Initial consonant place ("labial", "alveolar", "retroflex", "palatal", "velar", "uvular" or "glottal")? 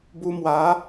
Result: labial